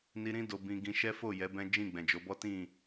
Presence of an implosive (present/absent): absent